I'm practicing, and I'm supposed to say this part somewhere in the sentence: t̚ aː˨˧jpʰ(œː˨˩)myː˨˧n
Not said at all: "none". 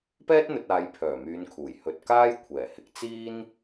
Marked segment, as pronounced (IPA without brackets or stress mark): œː˨˩